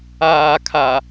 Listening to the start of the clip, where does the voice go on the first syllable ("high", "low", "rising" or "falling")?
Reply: low